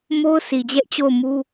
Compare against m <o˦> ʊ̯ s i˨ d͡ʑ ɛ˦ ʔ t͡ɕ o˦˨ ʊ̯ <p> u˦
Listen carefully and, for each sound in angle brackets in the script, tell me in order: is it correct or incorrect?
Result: correct, incorrect: m

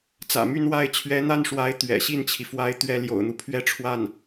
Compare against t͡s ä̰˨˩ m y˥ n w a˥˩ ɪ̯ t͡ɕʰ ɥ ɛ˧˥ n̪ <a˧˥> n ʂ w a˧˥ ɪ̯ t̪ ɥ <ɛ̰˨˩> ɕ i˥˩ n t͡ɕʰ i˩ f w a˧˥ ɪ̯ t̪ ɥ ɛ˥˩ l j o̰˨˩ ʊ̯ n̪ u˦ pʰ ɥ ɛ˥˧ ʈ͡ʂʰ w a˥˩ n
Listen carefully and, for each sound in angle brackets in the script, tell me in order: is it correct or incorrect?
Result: incorrect: a˥˩, correct

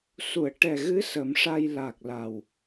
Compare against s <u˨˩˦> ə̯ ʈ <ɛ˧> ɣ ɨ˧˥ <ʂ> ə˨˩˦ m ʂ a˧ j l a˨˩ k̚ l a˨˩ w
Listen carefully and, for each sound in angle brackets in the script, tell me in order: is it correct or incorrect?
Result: incorrect: u˨˩˨, incorrect: ɛ˨˩, incorrect: s

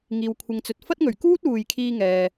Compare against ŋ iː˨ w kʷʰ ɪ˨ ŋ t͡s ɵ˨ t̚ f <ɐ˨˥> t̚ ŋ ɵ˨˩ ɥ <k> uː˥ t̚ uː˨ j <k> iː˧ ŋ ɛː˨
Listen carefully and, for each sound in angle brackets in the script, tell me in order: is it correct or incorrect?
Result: incorrect: ɐ˥, correct, incorrect: kʰ

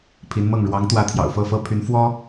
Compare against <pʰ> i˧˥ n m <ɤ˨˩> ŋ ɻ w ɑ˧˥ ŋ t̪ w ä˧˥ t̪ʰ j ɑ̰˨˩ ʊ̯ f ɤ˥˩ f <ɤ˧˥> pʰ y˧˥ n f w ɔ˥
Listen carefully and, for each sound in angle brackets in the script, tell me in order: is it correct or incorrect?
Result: correct, incorrect: ɤ˥˩, incorrect: ɤ˥

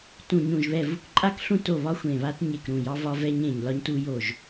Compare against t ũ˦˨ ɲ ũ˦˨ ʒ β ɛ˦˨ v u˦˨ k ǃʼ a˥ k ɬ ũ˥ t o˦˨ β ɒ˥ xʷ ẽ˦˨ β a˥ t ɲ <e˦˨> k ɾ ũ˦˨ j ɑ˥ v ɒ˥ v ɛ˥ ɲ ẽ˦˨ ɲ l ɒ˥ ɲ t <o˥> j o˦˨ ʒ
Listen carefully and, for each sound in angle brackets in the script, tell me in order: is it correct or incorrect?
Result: correct, incorrect: u˥

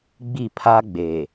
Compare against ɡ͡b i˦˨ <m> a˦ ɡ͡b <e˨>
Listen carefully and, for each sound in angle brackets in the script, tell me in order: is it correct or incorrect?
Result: incorrect: pʰ, correct

